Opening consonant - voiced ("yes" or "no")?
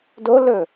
yes